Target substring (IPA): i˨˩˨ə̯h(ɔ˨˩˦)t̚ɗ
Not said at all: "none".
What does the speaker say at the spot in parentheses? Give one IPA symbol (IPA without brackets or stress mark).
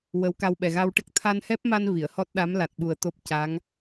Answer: ɔ˦˥